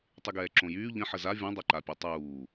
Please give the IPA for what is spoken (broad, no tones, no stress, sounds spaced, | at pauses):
tˤ y ɡ ɛː ǁ õ j yː ʎ ə̃ ħ ə z a vʲ õ dˤ ɛ ǃ a pʲ o tˤ uː